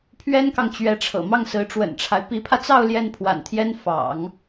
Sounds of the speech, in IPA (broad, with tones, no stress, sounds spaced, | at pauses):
pʰ ɥ ɛ˥ n k ɑ˨ ŋ t͡ɕ ɥ ɛ˧˥ ʈ͡ʂʰ ɤ̰˨˩ m ɑ˥˩ ŋ s ɹ̩˧˥ ʈ͡ʂ w ə̰˨˩ n ʈ͡ʂʰ a˦ ɪ̯ p i˧˥ pʰ ä˧ t͡s ɑ˥˧ ʊ̯ l j ɛ˥˩ n pʰ w a̰˨˩ n t̪ʰ j ɛ˥ n f ɑ̰˨˩˦ ŋ